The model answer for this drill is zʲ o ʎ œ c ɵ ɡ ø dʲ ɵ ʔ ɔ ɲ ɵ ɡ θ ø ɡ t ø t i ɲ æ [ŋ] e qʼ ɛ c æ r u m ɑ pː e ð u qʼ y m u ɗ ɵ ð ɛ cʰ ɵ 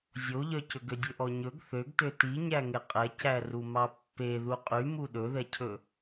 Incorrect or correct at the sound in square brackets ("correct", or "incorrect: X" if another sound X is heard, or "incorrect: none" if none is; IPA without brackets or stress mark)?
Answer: correct